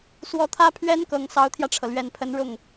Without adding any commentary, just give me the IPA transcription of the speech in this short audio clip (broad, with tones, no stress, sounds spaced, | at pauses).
s w ɔ˧˥ t̪ʰ ä˥ pʰ ɥ ɛ˥ n k ɤ˨˩ ŋ s ɑ˧˥ ʊ̯ t̪ʰ j ä˧ ʈ͡ʂʰ ɤ˩ l ɥ ɛ˨˩ n pʰ ə˧˥ n ɻ ʊ˥˩ ŋ